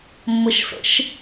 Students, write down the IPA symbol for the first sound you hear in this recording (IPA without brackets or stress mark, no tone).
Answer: mː